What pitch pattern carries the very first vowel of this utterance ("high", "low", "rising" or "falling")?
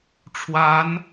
rising